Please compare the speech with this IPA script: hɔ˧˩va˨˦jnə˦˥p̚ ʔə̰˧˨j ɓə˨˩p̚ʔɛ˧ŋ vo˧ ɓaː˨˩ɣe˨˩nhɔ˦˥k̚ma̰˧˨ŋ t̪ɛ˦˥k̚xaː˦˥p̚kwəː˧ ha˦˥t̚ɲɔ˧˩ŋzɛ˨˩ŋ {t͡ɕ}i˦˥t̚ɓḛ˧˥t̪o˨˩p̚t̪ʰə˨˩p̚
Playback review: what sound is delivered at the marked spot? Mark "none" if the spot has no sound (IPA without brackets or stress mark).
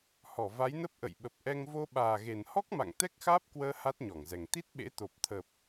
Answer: t̪